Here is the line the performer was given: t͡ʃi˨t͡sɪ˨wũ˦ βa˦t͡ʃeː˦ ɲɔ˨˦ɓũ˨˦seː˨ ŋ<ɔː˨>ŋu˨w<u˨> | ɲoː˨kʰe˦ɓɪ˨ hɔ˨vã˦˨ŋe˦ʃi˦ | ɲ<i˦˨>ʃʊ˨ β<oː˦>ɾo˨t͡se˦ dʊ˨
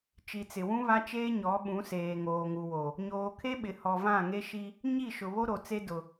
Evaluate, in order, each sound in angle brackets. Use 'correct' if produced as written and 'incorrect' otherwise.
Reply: incorrect: oː˨, incorrect: o˨, correct, incorrect: o˦

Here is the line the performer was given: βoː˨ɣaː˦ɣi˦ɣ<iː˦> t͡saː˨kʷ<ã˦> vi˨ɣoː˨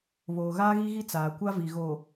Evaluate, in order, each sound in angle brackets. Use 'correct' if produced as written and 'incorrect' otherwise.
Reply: incorrect: i˦, incorrect: a˦

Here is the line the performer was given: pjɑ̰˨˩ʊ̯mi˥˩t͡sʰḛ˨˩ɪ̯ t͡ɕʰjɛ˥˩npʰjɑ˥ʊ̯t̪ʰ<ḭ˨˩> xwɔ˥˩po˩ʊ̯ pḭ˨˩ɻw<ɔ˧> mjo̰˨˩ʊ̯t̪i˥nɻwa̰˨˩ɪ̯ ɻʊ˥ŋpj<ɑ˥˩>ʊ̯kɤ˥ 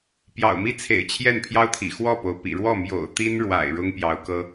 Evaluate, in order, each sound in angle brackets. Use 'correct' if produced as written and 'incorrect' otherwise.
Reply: correct, incorrect: ɔ˥˩, incorrect: ɑ˧˥

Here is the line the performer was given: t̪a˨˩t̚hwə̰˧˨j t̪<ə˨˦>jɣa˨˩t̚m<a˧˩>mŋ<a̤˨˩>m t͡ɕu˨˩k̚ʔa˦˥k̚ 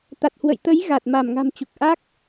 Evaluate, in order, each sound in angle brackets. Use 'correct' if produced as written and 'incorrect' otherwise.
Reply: correct, correct, correct

